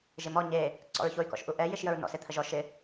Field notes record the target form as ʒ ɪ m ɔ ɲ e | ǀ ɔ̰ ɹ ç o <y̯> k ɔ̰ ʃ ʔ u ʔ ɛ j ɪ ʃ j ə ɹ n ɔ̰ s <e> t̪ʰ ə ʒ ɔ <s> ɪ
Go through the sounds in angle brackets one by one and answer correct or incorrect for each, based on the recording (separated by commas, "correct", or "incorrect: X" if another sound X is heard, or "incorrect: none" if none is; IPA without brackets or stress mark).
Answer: correct, correct, incorrect: ʃ